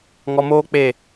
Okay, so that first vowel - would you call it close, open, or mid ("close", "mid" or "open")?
mid